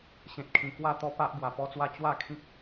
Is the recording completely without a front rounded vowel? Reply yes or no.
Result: yes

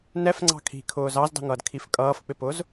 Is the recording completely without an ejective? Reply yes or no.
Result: no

